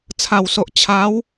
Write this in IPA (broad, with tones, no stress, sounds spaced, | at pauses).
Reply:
t͡sʰ a˨˩ w s o˨ ʔ t͡ɕʰ a˨˦ w